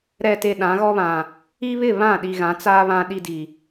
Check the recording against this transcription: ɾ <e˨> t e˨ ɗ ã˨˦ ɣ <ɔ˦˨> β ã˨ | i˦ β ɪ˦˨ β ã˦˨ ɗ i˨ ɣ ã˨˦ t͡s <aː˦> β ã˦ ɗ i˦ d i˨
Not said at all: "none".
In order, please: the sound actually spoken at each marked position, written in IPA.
ɛ˨, ɔ˦, aː˦

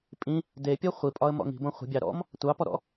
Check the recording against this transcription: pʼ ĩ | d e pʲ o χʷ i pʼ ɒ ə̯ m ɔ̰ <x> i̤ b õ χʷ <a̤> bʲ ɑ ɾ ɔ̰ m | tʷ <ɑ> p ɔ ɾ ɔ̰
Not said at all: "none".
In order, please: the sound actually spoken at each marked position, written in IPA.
ŋ, ə̤, ɑ

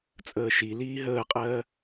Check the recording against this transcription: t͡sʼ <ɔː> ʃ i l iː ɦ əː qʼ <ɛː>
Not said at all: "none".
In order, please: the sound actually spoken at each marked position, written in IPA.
əː, ɜː

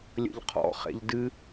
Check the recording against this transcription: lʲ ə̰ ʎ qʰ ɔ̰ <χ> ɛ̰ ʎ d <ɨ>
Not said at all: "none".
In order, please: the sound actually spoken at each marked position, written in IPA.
χ, ɨ

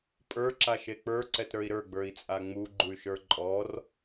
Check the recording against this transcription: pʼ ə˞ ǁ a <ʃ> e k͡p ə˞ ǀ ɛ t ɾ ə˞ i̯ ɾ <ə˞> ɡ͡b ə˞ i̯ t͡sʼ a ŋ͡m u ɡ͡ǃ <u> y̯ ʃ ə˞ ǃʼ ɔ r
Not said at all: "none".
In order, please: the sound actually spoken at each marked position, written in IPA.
ʃ, ə˞, u

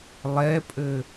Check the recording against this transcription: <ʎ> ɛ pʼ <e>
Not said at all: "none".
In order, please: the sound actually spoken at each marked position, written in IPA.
lˠ, ɘ

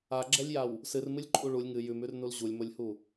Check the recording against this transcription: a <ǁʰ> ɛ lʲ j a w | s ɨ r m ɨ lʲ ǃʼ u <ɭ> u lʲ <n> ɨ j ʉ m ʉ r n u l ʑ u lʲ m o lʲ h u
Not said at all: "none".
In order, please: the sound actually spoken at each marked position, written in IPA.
ɡ͡ǁ, ɭ, ŋ

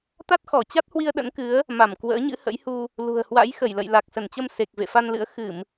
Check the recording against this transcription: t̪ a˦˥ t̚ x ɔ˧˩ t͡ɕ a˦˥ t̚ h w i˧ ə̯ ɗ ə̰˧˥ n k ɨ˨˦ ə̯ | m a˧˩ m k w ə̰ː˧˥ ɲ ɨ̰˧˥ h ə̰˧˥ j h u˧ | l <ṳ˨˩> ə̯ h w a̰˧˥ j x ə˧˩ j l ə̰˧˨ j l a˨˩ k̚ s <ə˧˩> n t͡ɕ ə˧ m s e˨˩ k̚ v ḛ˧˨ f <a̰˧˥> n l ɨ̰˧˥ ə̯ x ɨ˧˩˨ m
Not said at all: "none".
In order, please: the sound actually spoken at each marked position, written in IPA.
ṳ˨˩, ə˧˩, a˧

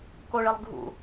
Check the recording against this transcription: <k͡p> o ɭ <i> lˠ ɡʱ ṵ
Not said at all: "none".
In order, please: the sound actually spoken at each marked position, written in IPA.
k, e

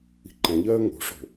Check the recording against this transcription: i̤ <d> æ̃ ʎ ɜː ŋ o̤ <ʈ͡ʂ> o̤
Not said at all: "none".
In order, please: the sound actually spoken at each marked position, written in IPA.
ǃ, ʂ

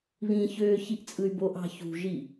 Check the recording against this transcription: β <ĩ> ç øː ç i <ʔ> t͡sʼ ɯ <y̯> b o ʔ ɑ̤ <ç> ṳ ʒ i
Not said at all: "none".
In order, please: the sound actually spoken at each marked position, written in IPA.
ĩ, ʔ, y̯, ç

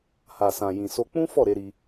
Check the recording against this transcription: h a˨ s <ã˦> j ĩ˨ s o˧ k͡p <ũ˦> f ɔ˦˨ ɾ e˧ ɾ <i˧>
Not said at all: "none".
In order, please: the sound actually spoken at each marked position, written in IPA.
ã˨, ũ˦, i˧

